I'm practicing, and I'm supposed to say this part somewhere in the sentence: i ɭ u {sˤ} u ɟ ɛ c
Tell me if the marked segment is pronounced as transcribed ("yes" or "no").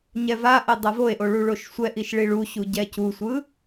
no